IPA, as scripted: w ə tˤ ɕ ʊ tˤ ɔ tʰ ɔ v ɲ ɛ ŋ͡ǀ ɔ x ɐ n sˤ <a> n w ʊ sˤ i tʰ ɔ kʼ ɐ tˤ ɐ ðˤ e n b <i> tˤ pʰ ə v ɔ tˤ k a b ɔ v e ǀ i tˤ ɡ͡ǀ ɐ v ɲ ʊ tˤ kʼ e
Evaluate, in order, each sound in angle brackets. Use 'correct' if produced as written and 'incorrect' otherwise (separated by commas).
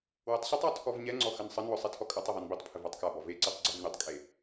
incorrect, correct